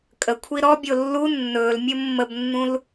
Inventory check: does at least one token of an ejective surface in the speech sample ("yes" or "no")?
yes